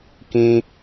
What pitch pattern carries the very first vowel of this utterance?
low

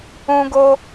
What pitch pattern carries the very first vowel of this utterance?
high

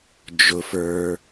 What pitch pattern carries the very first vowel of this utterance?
low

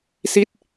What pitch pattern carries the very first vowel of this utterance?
falling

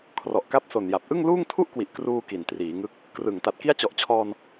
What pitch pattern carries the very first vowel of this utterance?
low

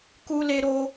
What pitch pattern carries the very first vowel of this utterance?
high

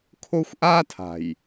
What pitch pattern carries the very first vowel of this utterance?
high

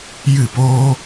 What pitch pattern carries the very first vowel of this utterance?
falling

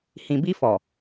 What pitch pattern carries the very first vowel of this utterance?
low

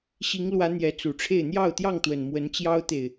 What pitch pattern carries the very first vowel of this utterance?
rising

